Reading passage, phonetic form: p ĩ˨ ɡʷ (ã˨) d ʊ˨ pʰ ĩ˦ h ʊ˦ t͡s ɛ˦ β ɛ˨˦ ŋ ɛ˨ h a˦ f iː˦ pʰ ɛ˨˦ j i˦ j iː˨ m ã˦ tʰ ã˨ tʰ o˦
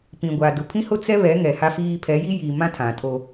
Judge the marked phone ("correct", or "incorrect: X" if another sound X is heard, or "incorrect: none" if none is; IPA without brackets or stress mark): incorrect: a˨